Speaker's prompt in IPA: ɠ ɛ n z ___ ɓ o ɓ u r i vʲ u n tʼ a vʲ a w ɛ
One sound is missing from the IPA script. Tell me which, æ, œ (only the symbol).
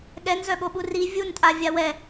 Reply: œ